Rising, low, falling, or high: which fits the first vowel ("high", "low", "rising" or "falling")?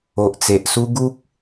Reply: low